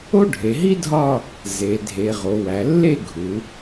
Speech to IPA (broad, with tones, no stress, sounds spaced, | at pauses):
o˥ ɖʱ e˩˧ ɦ i˥ dʱ ɒ˥˧ | z e˩˧ dʱ e˩˧ ʁ o˩˧ w æ˩˧ lː e˥˧ ɡʱ u˩˧